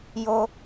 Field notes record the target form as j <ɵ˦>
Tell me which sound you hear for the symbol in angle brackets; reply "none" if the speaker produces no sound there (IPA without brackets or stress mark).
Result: o˦